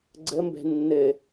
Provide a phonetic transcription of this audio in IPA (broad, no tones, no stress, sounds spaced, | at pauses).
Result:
ɡ͡ǀ ə m b ɛ̤ nː ɘ